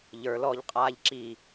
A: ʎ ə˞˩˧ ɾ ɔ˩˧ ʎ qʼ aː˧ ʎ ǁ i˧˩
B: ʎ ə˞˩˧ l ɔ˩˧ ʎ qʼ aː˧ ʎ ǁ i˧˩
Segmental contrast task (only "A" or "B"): B